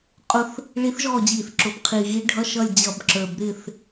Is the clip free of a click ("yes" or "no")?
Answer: no